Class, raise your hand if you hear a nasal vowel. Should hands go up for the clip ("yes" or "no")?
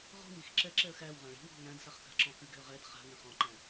yes